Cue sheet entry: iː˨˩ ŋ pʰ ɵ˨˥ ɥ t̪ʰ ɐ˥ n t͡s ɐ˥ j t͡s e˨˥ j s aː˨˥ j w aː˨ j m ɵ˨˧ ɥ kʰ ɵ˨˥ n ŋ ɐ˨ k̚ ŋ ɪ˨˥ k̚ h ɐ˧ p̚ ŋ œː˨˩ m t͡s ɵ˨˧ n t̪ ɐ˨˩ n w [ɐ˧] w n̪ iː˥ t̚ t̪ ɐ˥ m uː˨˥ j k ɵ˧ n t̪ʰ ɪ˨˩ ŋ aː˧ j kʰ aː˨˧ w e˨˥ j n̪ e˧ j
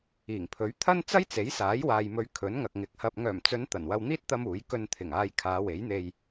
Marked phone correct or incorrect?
correct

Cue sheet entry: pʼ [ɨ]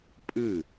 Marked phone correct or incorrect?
correct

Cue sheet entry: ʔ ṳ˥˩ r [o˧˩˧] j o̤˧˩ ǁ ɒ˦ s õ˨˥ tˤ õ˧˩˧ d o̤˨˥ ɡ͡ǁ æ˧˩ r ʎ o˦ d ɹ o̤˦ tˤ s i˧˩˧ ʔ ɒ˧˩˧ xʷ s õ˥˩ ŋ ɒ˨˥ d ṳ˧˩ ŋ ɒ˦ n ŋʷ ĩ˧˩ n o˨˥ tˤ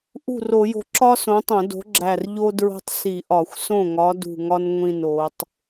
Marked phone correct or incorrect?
correct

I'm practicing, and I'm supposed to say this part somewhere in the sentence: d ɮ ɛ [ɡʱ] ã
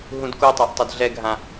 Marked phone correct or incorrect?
correct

